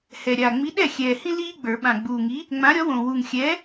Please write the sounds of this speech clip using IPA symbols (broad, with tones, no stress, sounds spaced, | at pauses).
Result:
h ɛ˨˩ ɾʲ a˨˩ ŋ͡m i˨˥ ɗ ɛ˥˩ xʲ ɛː˨˩ h ĩ˦ l iː˦ ɡ͡b ə˞˨˩˦ ɓ ã˨˩ ɡ͡b uː˨˩ ŋ i˨˥ | ŋ͡m ã˨˥ ɾʲ ɔ˨˥ w õ˨˩ w u˨˩ ŋ xʲ ɛː˨˥